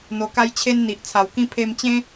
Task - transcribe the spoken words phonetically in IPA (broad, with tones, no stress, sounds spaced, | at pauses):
n̪ o˨˩ k a˧ j t͡ɕʰ e˧ n n̪ i˨ ʔ t͡sʰ a˨˩ w k ĩ˦ pʰ e˧ m t͡ɕ ẽ˦